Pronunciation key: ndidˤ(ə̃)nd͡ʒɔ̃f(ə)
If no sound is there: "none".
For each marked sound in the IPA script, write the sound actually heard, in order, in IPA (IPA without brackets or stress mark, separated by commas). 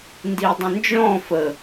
ə̃, ə